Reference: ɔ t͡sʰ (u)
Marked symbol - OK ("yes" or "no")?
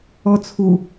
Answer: yes